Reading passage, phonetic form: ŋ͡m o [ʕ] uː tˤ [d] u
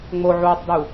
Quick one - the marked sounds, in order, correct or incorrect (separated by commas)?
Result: correct, correct